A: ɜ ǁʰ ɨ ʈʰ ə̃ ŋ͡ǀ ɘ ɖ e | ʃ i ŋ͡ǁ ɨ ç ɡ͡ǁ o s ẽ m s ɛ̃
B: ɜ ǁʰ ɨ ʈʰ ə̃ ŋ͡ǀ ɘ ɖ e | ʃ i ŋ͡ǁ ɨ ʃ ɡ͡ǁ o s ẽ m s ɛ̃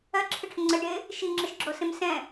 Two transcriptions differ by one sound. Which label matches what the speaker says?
B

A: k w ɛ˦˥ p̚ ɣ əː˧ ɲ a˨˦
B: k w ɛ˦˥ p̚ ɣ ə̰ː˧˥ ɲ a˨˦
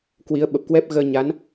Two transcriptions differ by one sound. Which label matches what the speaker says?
A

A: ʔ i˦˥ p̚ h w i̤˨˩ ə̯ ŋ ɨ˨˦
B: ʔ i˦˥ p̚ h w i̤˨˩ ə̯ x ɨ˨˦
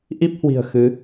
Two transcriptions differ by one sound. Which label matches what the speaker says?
B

